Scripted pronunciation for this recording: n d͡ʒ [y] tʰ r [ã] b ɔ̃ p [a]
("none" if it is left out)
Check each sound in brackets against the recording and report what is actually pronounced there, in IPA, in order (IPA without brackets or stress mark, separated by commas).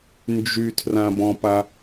y, ã, a